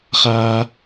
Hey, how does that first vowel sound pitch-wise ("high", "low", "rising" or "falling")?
high